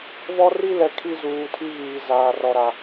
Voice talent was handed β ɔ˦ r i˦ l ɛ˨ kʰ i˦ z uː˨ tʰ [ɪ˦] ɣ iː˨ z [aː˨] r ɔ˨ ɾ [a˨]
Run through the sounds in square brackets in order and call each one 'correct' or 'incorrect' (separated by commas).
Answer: incorrect, correct, correct